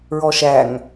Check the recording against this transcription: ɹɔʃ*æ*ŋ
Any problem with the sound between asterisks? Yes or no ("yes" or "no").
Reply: no